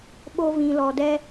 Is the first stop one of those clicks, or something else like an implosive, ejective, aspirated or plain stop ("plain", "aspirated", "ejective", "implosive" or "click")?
implosive